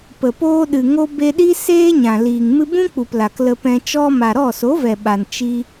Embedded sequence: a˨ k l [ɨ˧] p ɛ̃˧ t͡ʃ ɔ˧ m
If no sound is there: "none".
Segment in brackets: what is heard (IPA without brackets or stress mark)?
ə˧